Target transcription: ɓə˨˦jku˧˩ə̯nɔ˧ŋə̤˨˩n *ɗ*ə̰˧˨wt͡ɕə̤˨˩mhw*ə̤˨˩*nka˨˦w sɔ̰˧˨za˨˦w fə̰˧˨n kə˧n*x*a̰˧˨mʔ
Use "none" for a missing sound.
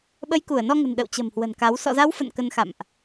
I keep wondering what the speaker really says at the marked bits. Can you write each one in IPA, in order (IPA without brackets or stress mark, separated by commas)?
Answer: ɗ, ə̤˨˩, x